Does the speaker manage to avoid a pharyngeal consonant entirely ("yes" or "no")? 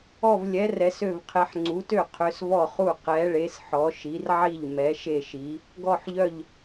no